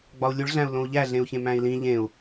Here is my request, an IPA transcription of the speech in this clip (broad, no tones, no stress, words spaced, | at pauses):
ɡ͡bɒu̯lʲuɭɮæ̃u̯ lõu̯ʎæ ɮẽu̯çẽmæ̃i̯lĩ ʎẽu̯